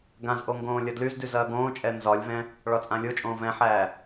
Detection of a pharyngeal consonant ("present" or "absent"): present